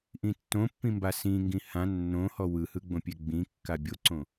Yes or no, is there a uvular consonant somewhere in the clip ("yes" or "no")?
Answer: no